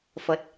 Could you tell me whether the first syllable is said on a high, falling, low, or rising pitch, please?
low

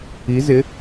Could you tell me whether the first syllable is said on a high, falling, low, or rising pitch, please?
rising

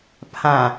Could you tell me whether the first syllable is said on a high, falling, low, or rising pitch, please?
low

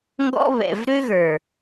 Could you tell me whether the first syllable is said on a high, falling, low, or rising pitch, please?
high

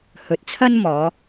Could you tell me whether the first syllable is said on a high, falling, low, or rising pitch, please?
low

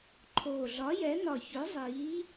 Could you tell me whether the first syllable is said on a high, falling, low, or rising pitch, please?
low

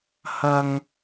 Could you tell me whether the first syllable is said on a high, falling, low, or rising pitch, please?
low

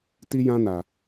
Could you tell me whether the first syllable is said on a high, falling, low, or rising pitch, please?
high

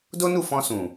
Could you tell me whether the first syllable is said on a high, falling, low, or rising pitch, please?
high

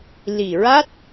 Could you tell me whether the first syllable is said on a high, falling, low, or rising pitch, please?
low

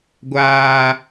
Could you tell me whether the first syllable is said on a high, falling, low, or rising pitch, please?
high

